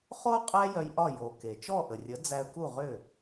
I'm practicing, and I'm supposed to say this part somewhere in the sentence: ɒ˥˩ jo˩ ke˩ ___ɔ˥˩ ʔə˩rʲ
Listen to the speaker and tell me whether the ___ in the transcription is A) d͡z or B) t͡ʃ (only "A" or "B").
B